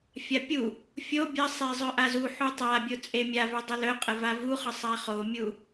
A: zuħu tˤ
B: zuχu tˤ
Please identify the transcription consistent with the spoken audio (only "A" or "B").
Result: A